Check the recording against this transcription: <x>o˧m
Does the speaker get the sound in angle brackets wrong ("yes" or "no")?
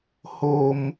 yes